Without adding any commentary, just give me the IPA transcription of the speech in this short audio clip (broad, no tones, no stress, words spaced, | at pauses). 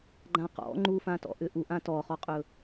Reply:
ɡ͡ǃãqɔ̰ ŋ͡ǃufãtɔ̰ ʔʏʔu ʔãtɔχɔqʼɵ